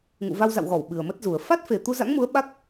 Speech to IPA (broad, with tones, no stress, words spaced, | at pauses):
ŋṵ˧˨va˧wza̰˧˨wɣɔ˧˩w ɓɨ˨˩ə̯mə˦˥t̚zu˨˩ə̯ fa˦˥t̚fe˨˩ t̪u˧ za̰˧˥ŋmu˨˦ə̯ ɓa˦˥k̚